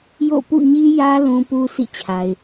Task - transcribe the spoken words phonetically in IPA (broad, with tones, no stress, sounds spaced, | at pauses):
j o̰˦˨ p ṵ˦˨ ɲ i˦ j ä˦ l ũ˦ p u˦ s ḭ˦˨ t͡ɕʰ a˨ ɪ̯